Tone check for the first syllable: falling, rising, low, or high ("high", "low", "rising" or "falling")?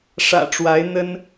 low